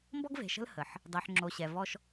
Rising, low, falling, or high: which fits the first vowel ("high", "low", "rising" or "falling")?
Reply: high